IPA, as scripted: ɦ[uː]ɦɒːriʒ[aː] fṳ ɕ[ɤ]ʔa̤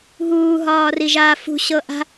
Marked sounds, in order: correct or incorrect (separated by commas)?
correct, correct, correct